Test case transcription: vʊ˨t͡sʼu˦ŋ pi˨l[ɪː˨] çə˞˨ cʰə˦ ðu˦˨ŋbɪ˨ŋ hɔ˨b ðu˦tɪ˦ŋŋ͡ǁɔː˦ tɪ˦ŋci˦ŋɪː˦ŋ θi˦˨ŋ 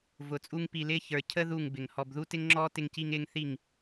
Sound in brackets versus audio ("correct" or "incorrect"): incorrect